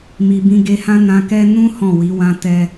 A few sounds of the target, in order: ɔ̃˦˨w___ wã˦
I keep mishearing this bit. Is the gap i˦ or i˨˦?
i˨˦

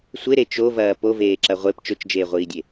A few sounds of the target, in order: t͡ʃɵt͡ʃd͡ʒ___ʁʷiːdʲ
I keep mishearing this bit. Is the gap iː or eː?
eː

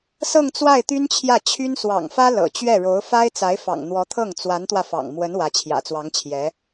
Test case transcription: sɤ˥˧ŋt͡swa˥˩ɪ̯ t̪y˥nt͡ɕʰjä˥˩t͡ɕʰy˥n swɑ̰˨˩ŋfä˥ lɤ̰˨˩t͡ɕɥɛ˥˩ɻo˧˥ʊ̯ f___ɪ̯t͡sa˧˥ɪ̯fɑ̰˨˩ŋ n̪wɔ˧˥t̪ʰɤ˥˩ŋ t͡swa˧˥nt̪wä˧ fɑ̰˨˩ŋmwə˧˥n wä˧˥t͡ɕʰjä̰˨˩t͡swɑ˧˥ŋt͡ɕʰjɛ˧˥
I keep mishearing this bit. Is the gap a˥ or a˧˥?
a˥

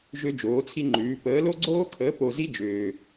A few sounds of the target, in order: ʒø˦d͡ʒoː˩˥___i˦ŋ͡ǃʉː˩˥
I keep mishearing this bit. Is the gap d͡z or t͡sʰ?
t͡sʰ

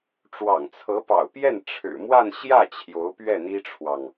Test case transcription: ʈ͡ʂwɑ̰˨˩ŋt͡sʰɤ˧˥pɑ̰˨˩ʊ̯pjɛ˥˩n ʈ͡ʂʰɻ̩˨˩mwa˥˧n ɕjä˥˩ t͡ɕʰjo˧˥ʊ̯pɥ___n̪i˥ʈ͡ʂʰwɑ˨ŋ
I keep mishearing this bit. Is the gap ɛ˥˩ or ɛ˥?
ɛ˥˩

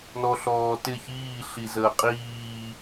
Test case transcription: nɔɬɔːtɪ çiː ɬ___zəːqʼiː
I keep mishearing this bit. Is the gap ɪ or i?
i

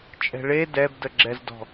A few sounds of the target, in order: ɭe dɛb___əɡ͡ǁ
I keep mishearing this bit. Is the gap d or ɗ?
d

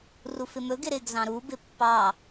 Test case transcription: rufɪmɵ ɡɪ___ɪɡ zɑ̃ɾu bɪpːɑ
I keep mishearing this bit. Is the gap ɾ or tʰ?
ɾ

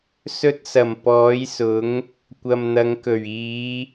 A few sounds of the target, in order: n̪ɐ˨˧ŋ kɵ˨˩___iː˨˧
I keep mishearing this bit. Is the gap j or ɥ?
ɥ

